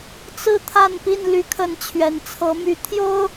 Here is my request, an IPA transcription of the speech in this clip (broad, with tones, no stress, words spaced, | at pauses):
t͡sɹ̩˦ t̪ʰa˥˨npi˥˨n ly˨˦kʰə˨˦n t͡ɕʰɥɛ˨˩nt͡sʰɤ˨˦my˨˦ t̪ʰjo˦ʊ̯